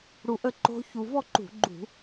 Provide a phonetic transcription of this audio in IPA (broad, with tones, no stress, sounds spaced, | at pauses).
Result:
ɽ u˧ ʔ ə˥˨ ǃ o̤˦˥ ç u˧ v ɔ˥˨ ǃ ṳ˧˩˧ ɡ͡ǃ ṳ˧˩˧